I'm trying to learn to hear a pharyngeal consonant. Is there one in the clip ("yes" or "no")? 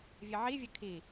yes